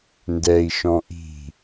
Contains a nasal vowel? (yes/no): yes